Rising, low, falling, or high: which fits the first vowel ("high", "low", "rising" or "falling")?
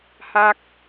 low